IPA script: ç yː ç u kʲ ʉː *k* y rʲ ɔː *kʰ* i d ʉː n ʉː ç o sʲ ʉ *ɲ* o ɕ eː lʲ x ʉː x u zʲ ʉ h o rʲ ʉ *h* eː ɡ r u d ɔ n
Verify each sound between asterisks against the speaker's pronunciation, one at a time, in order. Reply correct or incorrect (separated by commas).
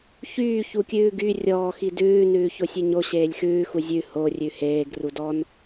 incorrect, incorrect, correct, correct